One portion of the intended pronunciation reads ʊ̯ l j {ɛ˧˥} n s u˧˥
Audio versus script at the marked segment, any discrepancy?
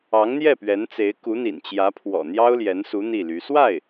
no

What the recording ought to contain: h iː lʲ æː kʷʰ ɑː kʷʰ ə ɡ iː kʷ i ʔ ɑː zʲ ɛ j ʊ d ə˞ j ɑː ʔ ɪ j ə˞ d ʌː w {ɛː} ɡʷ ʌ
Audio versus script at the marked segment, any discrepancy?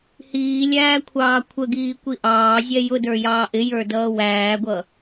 yes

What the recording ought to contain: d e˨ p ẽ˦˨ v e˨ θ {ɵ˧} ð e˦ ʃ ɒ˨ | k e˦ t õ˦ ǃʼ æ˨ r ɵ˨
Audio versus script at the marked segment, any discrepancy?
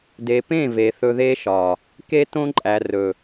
no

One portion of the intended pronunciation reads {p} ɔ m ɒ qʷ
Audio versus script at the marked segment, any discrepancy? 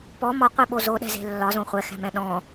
no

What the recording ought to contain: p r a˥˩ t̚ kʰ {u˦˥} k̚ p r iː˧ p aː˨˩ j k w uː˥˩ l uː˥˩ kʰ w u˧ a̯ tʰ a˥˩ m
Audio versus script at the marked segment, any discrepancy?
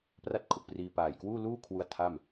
yes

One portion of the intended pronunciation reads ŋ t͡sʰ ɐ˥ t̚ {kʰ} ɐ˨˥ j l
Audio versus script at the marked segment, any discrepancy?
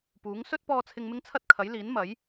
no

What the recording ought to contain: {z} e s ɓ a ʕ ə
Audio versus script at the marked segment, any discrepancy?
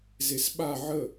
no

